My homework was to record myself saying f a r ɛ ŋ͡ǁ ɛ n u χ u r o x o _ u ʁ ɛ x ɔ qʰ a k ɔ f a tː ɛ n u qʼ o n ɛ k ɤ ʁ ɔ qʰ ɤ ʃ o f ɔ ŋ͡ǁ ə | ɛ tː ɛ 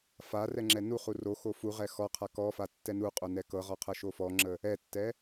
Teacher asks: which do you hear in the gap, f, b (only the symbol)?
f